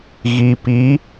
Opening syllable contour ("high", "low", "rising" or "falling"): low